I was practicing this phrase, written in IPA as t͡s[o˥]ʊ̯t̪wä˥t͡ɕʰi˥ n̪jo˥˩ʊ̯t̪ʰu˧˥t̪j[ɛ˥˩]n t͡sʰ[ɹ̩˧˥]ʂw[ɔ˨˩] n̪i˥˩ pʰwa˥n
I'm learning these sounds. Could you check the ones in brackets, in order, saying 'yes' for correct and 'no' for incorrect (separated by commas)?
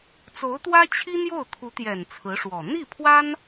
no, no, yes, yes